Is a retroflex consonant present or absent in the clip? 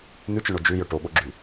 present